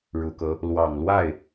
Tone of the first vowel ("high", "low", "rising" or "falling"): low